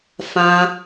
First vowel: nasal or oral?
nasal